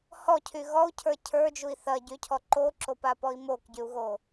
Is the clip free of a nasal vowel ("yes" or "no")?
yes